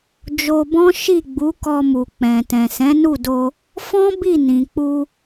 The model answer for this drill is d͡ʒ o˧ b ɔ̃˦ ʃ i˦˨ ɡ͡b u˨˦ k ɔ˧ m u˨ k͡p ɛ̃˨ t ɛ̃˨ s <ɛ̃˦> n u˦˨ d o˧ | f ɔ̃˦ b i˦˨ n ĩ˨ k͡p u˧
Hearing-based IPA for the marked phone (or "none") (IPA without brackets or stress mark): ɛ̃˨˦